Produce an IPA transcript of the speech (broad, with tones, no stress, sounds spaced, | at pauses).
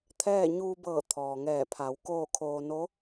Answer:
t̪ʰ ɛː˥˨ ɲ uː˧ b ɤː˧˩ t̪ʰ ɔː˩ ŋ ɛː˧˩ pʰ a˩˧ w k oː˥˨ kʰ oː˧ n o˧˥